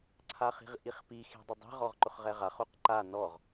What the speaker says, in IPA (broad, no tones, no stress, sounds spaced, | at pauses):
ǀʰ a χ i̤ ʁ ʔ i χ p i x i̤ dˤ ʊ dˤ i̤ ʁ ɔ ʁ ǃ ʊ χ ʁ ɛ ʁ a χ o q ǃ a n ɔ ʁ